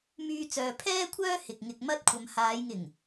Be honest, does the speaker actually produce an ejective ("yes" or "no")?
no